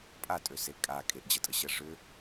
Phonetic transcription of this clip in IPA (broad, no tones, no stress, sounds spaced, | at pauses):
pʼ a tʼ ø s e kʼ a kʼ e ʔ d͡ʑ ə tʼ ə ɕ ɜ ʐ ʏ